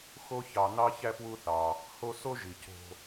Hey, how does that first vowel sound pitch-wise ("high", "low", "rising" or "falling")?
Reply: high